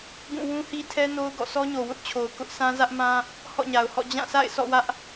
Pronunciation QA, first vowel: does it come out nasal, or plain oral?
nasal